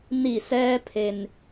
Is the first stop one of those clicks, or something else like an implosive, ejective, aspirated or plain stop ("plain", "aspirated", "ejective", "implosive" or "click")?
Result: aspirated